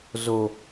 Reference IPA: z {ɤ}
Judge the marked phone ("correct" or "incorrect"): incorrect